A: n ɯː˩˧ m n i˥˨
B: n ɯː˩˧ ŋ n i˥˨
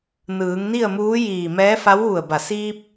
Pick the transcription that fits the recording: B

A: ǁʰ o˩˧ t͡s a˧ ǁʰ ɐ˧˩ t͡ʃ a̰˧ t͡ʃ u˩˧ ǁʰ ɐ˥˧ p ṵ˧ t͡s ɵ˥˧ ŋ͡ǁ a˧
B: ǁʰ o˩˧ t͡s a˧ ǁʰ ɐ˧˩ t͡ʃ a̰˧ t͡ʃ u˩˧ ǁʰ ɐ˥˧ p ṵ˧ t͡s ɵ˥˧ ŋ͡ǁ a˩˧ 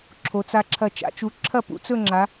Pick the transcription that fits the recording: B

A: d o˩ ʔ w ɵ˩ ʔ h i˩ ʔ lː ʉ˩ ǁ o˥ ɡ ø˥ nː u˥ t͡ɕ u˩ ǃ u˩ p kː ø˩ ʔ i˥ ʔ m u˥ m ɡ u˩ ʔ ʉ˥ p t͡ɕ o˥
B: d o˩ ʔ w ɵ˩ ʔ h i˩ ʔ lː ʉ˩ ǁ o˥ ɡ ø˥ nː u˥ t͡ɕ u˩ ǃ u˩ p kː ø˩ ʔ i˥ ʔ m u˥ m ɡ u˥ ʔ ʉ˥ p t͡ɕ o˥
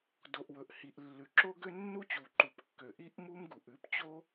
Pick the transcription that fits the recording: A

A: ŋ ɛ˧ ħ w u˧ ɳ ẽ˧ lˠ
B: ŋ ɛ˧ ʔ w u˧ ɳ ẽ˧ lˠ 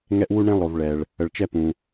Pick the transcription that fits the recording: B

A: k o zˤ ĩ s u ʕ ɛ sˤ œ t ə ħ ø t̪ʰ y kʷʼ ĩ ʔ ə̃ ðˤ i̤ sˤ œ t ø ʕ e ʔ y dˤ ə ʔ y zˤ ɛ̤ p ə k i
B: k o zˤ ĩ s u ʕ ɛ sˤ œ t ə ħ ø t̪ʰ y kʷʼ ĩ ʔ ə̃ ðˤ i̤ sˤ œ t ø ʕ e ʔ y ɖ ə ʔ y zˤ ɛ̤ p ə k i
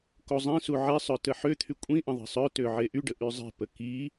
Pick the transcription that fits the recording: B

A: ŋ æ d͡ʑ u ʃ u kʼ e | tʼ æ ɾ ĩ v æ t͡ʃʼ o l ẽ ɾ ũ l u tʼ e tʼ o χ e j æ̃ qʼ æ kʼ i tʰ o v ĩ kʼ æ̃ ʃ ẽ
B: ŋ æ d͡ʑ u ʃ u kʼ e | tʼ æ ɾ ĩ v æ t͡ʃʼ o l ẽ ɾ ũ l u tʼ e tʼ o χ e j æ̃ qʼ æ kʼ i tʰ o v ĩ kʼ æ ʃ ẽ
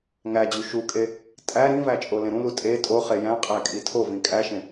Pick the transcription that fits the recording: B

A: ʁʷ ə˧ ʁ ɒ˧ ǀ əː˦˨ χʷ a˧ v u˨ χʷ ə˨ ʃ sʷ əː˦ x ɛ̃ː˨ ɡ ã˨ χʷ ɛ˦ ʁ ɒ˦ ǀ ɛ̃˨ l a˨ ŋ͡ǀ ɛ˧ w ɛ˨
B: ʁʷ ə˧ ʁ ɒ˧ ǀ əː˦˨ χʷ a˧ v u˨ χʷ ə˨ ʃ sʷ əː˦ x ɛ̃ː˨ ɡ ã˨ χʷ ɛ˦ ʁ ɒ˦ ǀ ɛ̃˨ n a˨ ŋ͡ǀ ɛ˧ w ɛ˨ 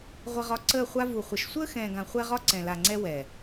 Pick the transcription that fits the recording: A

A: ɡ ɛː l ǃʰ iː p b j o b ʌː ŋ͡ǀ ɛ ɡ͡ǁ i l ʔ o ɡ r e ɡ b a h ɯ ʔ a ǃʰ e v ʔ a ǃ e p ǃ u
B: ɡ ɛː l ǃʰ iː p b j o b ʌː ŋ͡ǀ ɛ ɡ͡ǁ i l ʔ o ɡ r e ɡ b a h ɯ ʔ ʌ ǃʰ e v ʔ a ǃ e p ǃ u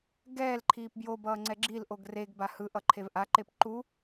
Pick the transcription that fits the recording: B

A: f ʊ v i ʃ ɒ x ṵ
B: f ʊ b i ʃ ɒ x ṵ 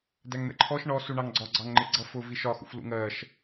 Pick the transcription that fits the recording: A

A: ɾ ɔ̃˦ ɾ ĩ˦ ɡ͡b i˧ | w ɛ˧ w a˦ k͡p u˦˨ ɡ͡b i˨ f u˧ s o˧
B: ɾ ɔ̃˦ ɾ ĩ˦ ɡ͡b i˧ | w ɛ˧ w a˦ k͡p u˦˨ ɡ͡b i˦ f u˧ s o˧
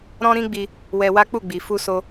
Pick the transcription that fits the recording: A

